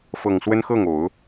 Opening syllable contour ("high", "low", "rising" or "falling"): low